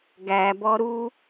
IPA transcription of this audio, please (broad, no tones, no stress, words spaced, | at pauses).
ɡæbɔ ɾu